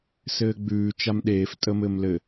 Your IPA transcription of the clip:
s ɘː ɡ͡b ʉː t͡ʃ a m ɗ eː f tʼ əː m ɘː m l ɘ

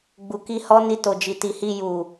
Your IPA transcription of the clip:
ɡ͡b u˨ k i˧ h ɔ˦ n i˧ t o˨ d͡ʒ i˨ t i˨ h i˧ j u˨

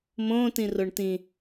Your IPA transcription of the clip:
m õ t ĩ r o ɳ t ĩ

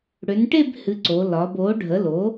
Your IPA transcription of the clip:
ɽ ø˩˧ n ʈ e˥˧ b h ɨ˩˧ ǀ o˩˧ l ɒ˩˧ b oː˩˥ ɖʱ ə˩˥ l oː˩˥

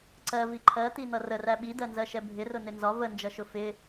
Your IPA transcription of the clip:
ǀ ɜ v i ǃʰ ɜ t̪ i n̪ ʌ r ə r æ ɓ i d ɜ n z ɜ ʃ ɛ bʱ ɪ r ʊ n ɪ n z ɒ v ə n d͡ʒ ʌ ʃ ʊ f ɪ

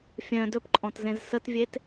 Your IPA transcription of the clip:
fʲ œ̃ d ɵ p ǃʼ ɔ̃ t z ẽ z s ə t vʲ e t

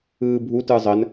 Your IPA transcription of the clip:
ɯː bʱ u t ɯ zˤ ə n

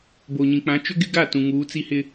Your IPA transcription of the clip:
b o˨ ɲ ĩ˨ k͡p ã˨˦ t͡ʃ ʊ˦ ɡ ɪ˦ ɡ a˦˨ t ũ˨ ŋ uː˨˦ t͡s i˦ h ɪ˦

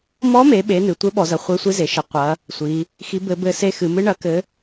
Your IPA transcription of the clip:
m ɔ˧˥ m e˩˧ ɓ e˩˧ n ɨ˩˧ tʷ ɘ˧˥ ɓ ɔ˩˧ z ɐ˩˧ χʷ e˧˥ sʷ i˧˥ z e˩˧ ʃ ɘ˩˧ qʷ ɐ˧˥ | sʷ i˩˧ | x i˧˥ b ɘ˧˥ b ɘ˧˥ s e˧˥ x ɨ˩˧ m ɨ˧˥ ɳ ɐ˧˥ k ɘ˧˥

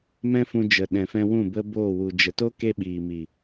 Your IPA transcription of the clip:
m ɛ̃˦ f ũ˧ d͡ʒ ə˨ ɗ ɛ̃˨ f ɛ̃˧ w ũ˦˨ b ə˦ b oː˦˨ w u˧ d͡ʒ ə˧ t o˦ k e˧ ɓ iː˨ m i˨

